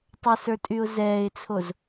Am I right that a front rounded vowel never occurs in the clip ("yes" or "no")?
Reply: no